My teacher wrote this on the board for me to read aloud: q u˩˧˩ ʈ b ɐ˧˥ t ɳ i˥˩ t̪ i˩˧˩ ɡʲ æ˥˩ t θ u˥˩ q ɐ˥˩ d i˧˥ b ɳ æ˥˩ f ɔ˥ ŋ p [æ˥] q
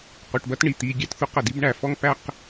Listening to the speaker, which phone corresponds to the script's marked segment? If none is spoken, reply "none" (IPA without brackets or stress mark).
æ˥